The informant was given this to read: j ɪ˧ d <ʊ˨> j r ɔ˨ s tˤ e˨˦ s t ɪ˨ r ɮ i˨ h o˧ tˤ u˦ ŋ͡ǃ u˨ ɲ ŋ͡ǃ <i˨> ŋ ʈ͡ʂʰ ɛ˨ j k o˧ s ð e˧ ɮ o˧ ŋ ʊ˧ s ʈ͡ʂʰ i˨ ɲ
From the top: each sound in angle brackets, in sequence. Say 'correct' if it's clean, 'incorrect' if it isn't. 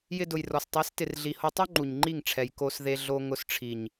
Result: correct, incorrect: i˦˨

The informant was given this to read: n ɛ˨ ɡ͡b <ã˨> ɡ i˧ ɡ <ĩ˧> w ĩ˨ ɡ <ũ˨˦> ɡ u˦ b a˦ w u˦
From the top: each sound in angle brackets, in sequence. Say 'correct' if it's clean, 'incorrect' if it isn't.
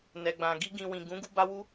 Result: correct, correct, correct

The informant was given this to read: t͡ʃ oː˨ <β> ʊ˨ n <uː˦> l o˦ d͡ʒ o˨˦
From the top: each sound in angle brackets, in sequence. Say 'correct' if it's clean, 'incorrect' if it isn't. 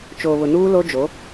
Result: correct, correct

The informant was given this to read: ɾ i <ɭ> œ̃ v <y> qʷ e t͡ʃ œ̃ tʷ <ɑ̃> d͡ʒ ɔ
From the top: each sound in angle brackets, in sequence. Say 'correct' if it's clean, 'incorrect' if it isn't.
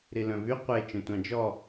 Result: incorrect: l, correct, correct

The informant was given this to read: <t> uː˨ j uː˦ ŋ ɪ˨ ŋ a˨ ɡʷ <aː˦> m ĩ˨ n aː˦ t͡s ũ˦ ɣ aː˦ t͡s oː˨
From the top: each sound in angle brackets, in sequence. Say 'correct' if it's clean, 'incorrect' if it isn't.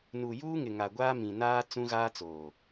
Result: incorrect: n, correct

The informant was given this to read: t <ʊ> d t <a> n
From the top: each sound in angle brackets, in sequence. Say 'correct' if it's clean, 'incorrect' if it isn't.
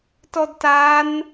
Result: incorrect: ɔ, correct

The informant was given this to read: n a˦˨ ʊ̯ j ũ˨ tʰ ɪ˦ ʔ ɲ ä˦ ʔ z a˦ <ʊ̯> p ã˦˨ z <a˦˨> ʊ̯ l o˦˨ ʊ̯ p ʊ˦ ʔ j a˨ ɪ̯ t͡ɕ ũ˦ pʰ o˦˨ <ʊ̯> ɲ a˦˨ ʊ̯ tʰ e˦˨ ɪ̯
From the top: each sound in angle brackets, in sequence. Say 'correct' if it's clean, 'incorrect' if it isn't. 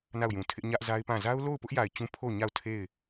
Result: incorrect: ɪ̯, incorrect: a˦, correct

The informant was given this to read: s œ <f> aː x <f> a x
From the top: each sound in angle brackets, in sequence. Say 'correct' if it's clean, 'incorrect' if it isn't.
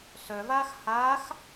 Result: incorrect: v, incorrect: h

